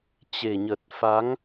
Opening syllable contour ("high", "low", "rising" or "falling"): low